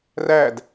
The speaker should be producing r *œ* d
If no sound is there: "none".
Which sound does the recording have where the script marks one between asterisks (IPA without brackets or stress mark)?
æ